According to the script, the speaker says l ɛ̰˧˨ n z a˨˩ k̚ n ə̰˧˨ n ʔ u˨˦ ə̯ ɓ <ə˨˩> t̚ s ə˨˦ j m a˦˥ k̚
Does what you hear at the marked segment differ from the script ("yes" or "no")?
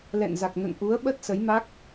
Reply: yes